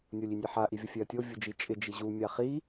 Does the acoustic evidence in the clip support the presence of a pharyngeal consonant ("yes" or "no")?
yes